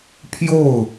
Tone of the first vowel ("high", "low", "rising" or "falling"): falling